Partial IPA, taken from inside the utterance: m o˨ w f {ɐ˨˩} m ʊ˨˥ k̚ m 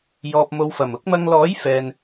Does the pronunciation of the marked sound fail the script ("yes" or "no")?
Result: no